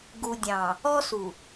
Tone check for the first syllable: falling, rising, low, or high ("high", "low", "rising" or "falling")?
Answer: low